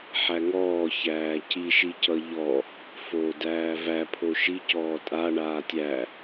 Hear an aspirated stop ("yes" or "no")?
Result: yes